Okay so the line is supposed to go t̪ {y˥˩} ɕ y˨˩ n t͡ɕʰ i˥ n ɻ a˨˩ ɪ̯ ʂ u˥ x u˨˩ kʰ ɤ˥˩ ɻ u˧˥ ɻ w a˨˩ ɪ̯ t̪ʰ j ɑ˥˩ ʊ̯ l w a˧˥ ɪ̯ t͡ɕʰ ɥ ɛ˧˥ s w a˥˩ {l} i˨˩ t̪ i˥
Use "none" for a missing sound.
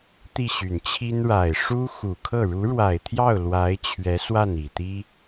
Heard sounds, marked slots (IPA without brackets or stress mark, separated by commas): i˥˩, n